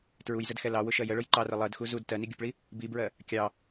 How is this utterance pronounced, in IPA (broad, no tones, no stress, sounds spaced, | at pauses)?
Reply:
t ɹ u j z ə d x ɛ l ɑ w ʊ ʃ ɜ j ə ɭ ʊ j ǃ ɑ r ə lˠ ɜ d x u z u d t ɜ n i ɡʲ u p ɭ i | b i b ɹ ɜ | kʲ ɑ